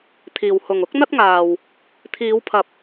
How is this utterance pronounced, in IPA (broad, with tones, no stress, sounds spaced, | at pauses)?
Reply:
t̪ʰ iː˨ w h ʊ˨ ŋ ʊ˨˥ k̚ n̪ ɐ˥ t̚ ŋ aː˨ w | t̪ʰ iː˨˧ w pʰ ɐ˨ p̚